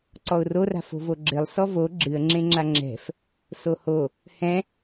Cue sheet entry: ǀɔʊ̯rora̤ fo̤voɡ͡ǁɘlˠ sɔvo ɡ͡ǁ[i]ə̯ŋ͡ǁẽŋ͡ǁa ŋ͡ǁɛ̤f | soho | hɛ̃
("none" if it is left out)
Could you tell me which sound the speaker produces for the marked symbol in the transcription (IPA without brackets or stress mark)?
ɨ